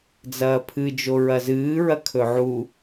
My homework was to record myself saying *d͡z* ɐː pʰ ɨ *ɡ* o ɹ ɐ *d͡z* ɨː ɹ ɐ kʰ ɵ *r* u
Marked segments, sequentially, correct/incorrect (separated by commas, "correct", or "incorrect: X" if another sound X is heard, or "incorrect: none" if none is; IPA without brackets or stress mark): correct, incorrect: d͡ʒ, incorrect: z, incorrect: ʕ